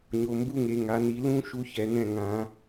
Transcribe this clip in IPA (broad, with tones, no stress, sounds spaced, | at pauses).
ɲ o˨ m b u˦ ŋ e˨ ŋ a˨ n i˨ l ũ˦ ʃ u˦ ç ɛ˨ n ɛ̃˦˨ ŋ ã˨˦